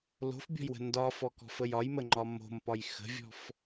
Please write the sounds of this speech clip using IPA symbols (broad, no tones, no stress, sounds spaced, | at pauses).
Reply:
l o̤ f bʲ ɔ̤ j w ə̤ n d ɒ f ɔ k ɔ̤ f ə j ɒ j m ə ŋ͡ǃ ɒ m o̤ m p ɒ j x ə̤ vʲ ɔ̤ f